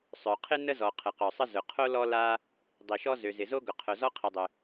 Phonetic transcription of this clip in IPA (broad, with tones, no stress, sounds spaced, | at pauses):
sˤ œ˩ qʰ ɪ˥ n ə˥ z ɔ˩ qʰ ə˩ q œ˩ sˤ ə˥ z ʊ˩ qʰ o˥ l ɔ˥ l a˥ | dˤ i˩ ʃ ɔ˥ z ø˩ z ɪ˩ z o˥ ɡ ʊ˩ qʰ œ˩ z ɔ˥ qʰ i˩ dˤ ʏ˩